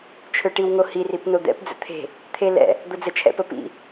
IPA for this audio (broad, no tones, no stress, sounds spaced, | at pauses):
t͡ʃʰ ø ʈ i w ŋ o h i r i p n o d̪ ɛ̰ p d͡z ə̰ t̪ʰ e̤ | t̪ʰ e l ɛ̰ | d̪ o d͡z ə t͡ʃʰ ɛ̰ p ə p ḭ